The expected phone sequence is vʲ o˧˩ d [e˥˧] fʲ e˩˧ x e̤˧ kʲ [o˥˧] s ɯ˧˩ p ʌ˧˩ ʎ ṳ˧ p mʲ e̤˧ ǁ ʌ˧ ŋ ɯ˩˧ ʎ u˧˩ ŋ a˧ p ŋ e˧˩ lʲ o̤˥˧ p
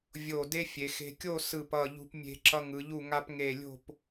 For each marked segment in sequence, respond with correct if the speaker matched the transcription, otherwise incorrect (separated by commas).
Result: incorrect, correct